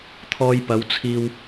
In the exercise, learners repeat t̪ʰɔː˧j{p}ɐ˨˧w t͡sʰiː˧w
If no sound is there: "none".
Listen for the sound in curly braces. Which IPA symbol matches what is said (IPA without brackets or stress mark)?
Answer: p